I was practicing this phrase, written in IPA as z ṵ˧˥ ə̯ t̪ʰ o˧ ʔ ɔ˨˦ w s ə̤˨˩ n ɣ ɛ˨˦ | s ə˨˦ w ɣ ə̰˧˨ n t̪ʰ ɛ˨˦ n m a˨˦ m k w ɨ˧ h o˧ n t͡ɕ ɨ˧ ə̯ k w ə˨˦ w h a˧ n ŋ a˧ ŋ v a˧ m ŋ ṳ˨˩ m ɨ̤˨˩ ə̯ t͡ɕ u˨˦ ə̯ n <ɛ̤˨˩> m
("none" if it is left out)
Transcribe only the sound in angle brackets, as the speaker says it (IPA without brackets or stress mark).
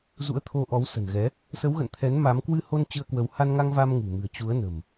ə̤˨˩